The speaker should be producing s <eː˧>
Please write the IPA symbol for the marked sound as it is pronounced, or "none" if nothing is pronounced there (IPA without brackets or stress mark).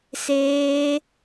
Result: eː˧